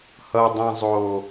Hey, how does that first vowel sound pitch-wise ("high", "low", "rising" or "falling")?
high